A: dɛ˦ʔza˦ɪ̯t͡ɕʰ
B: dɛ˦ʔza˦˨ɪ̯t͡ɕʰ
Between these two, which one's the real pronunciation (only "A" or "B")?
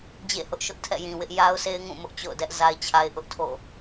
A